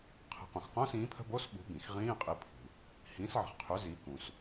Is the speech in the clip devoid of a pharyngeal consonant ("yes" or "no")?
no